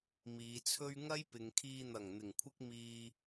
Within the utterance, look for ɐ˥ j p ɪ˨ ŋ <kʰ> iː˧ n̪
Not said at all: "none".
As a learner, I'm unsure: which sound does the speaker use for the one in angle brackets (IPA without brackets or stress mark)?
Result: kʰ